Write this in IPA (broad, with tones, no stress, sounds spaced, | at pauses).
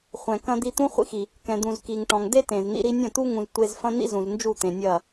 χʷ ɛ̃˨ k ɐ̃˦ d̪ i˦ t̪ ũ˦ χʷ ḭ˧ x i˨ | k ɛ̃˨ d̪ ũ˨ z k i˨ ŋ ʈ ɔ̃˨ ŋ d e˦ t ẽ˨ z n̪ ḭ˧ ɾ i˧ nʲ ɐ̃˦˨ t̪ u˦ ŋ ũ˦ z tʷ e˦ z f ɐ̃˦ n̪ ḭ˦ z ũ˨ z n d͡ʒ u˦˨ t̪ ẽ˨ nʲ ɐ˦˨